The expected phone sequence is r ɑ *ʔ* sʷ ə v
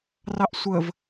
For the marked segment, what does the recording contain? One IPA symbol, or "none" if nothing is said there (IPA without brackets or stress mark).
ʔ